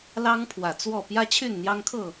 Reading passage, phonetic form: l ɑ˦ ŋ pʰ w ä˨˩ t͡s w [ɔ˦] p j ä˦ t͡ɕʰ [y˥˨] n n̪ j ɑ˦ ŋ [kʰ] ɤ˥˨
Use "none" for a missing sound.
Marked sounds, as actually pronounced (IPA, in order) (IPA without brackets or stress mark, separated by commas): ɔ˥˨, y˥˨, kʰ